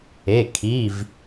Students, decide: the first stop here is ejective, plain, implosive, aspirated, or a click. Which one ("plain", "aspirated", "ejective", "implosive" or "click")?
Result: aspirated